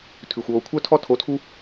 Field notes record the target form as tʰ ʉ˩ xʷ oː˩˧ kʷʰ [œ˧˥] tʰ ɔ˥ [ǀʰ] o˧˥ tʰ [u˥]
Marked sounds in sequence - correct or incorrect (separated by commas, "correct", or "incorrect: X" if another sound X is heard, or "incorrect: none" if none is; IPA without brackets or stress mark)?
incorrect: œ˥, incorrect: tʰ, correct